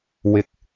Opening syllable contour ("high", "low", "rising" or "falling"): low